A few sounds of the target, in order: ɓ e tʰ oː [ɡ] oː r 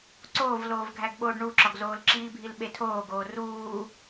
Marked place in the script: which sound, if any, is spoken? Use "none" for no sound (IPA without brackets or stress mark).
ɡ